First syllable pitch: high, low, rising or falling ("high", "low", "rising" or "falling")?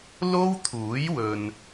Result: high